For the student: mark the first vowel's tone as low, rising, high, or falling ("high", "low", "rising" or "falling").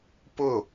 falling